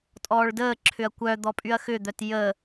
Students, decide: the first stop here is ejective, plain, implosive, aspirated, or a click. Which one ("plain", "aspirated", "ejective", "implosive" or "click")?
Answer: ejective